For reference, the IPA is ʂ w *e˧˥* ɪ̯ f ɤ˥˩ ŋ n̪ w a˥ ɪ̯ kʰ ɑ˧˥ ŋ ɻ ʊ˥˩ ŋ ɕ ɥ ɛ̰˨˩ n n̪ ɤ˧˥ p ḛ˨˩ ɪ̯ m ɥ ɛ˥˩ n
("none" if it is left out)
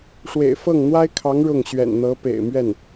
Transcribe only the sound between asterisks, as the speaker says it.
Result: ḛ˨˩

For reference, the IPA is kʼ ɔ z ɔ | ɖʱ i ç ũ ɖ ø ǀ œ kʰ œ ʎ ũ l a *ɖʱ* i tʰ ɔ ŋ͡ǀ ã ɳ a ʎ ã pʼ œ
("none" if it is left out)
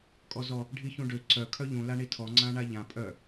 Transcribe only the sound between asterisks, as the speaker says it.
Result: ɳ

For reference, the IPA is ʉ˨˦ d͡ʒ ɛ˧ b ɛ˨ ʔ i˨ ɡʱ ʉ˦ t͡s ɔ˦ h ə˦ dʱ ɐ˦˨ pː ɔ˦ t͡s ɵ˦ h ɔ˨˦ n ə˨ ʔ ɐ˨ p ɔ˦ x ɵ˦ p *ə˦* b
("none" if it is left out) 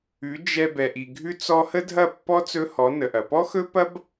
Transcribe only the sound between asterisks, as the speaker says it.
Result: ɐ˦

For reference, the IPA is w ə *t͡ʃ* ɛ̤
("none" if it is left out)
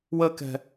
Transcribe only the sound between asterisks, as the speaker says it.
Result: k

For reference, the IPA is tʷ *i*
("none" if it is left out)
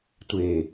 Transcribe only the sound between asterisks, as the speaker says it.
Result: e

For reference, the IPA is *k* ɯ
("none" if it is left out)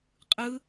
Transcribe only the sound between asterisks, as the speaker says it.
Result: qʼ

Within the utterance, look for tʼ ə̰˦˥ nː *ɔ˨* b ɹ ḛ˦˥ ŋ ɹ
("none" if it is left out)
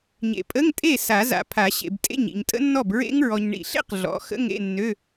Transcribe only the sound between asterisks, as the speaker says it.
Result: ɔ˥˩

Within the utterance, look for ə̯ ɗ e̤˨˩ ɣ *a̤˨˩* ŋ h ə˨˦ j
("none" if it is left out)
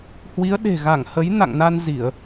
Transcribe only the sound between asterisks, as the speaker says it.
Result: a˧˩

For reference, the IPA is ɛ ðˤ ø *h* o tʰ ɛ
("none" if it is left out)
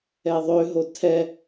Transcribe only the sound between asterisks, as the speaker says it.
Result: ɦ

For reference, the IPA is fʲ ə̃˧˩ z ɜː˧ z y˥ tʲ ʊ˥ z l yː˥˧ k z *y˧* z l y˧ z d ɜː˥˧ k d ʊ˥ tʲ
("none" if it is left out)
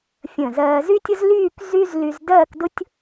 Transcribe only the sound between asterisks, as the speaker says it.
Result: y˥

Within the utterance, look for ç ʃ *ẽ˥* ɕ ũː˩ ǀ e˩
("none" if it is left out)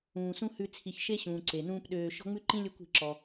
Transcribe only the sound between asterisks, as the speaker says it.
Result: e˥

